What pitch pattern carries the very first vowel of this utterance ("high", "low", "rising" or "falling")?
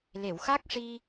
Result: low